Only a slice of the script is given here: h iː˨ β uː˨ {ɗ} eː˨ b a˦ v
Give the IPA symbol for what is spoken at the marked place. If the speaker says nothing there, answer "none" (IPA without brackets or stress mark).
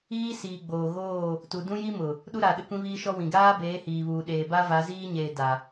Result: ɗ